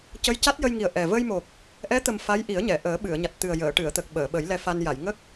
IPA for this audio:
c ə˧˥ j c a˦˥ t̚ j ə˧ j ŋ i˨˩ ə̯ ʔ ɛ˨˩ v ə˧ j m o˨˩ k̚ | ʔ ɛ˧˥ t̪ ə˨˩ m f a˧˥ j ʔ i˨˩˦ ə̯ ɲ ɛ˨˩˨ ʔ əː˨˩˦ ɓ ɨ˨˩˨ ə̯ ɲ a˨˩ t̚ t̪ ɨ˨˩ ə̯ j əː˨˩˨ ʈ ɨ˨˩˨ ə̯ t̪ ə˨˩ k̚ ɓ əː˨˩˨ ɓ ə˨˩˦ j l ɛ˧ f a˧ n j a˨˩˨ j ŋ ə˦˥ k̚

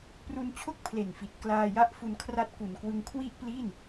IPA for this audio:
p r u˧ n t͡ɕʰ o˥˩ k̚ pʰ l e˨˩ n f i˨˩ t̚ k l aː˧ j a˥˩ ʔ f u˧ n kʰ r a˦˥ t̚ k u˨˩ n k w ɯ˧ ŋ kʰ w i˥˩ ʔ p l i˥˩ n

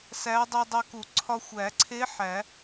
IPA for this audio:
s æ˧˥ dˤ i˧ dˤ æ˧ k u˨˩˦ ǀʰ ɒ˧ xʷ æ˨˩˦ ǀʰ e˧˥ ħ æ˨˩˦

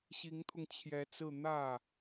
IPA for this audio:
ɕ i˧˥ ŋ t̪ʰ ʊ˧ ŋ t͡ɕʰ j ɛ˧˥ t͡s ɹ̩˥˧ n̪ ä˥˩

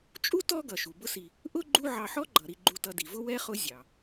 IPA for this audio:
t͡ʃʼ u˥ t ɔ˦ ɡ ʌ˩ ʃ u˩ b ʊ˦ s i˨ | ʔ ʊ˥ ɡ͡ǃ u˦ ʕ ɑ˨ ħ ɔ˦ ɡ͡ǃ ʌ˩ ɾ i˨ ɡ͡ǃ u˨ t ʌ˨ d i˩ v ʊ˥ w ɛ˥ χ ʊ˦ zʲ ɑ˩

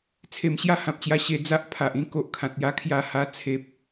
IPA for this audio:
t͡sʰ e˨˩ m ɕ j a˥˧ h ã˨ p̚ t͡ɕ j a˧ ɕ e˧ d͡z a˦ ʔ pʰ a˨ ʔ ĩ˦ k o˨ ʔ kʰ ã˨ t̚ j a˦ kʰ j a˦ h a˦ t͡sʰ e˦ p̚

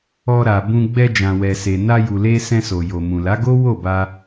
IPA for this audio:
ɔ˧ ɾ a˨ b ũ˧ ɡ͡b ɛ˧ d͡ʒ ã˨ w ɛ˨ s e˨ n a˧ j u˨ l e˧ s ɛ̃˧ s o˨ j o˨ m ũ˨ l a˨˦ ɡ o˦ w o˦˨ b a˧

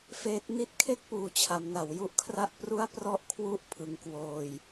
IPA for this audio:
f eː˦˥ t̚ n i˦˥ t̚ kʰ e˥˩ k̚ p uː˩˦ t͡ɕʰ a˩˦ m n a˩˦ w j u˥˩ ʔ kʰ r a˥˩ ʔ p r u˥˩ a̯ p r ɔ˥˩ ʔ kʰ w u˥˩ ʔ pʰ ɯ˧ ŋ k w oː˧ j

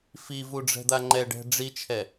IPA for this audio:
f i v u ɖ͡ʐ ɛ̤ d̪ a ŋ͡ǃ ɛ ɖ ɛ̤ ɖ͡ʐ i t͡ʃʰ ɛ

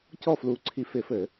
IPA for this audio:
c ɔ˥˩ f l uː˧˩ ǀʰ i˧ f ɪ˧˩˧ f ɘ˧˩˧

